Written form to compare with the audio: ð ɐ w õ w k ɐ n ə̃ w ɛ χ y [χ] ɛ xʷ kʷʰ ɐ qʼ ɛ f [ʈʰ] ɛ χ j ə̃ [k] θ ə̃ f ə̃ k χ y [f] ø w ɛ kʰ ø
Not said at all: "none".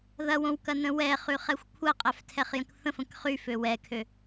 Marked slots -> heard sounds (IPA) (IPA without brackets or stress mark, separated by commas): χ, tʰ, k, f